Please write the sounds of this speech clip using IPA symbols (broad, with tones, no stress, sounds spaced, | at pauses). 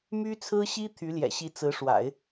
m y˥ t͡sʰ ɹ̩˥ ɕ i˥ t̪ʰ y˧˥ l j ɛ̰˨˩ ɕ i˧˥ t͡s ɹ̩˧˥ ʂ w a̰˨˩˦ ɪ̯